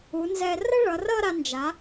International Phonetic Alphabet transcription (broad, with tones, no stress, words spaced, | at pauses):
u˩˧nzɛ˧ rʌ˥ɭʌ˩˧rʌ˥˧ ɾa˧nd͡ʒa˩˧